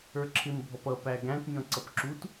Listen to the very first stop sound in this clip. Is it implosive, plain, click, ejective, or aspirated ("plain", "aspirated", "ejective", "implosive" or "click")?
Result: click